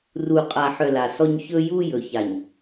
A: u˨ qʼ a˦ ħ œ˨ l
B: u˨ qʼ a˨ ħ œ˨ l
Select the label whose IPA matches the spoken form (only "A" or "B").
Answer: B